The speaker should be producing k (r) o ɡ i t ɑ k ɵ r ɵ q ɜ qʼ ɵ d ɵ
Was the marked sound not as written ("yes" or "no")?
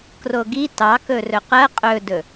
no